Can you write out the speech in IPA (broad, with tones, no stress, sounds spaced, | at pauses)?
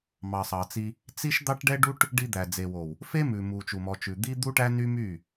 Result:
m ɑ˨ sˤ ɑ˨ t͡s i˧ | t͡s i˦ ʃ d̪ ɑ˦ ʈ ɖ ɛ˦ ɖ u˦ ʈ | ɖ i˧ d̪ æ˨ d͡z e˨ w o˨ w | f e˦ m ʉ˨ m u˨ t͡ʃ u˨ m ɔ˨ t͡ʃ ʉ˨ d̪ i˦ d̪ u˦ ʈ æ˦ n y˦ m y˦˨